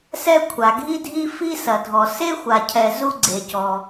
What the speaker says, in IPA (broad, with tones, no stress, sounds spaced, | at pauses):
s ɛ˥ kʷʰ a˩ ɡʱ i˥ dʱ i˥ f i˥ s ɐ˩ dʱ ɔ˩ s e˥ xʷ a˩ cʰ ɛ˩ z u˥ ɡ͡ǀ e˩ c ɔ˩